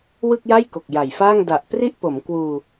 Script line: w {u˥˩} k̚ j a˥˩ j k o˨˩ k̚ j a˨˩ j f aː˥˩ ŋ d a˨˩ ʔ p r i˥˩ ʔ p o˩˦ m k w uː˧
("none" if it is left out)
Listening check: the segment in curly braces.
ɯ˥˩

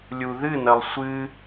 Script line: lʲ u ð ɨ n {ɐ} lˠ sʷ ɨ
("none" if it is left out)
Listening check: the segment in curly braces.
ɐ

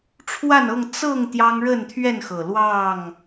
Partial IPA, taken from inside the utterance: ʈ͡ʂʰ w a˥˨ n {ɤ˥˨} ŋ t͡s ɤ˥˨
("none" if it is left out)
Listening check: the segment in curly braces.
ɤ˥˨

